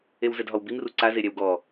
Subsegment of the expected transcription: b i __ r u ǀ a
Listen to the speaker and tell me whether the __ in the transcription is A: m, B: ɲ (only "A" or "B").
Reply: A